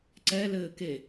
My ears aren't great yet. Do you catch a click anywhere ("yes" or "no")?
yes